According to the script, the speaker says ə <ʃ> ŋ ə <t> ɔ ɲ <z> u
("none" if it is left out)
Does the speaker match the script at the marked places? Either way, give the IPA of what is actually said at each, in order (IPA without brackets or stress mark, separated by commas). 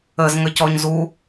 z, c, z